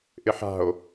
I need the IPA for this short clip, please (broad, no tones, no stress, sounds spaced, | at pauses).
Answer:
ʔ ɪ ħ a̤ o̯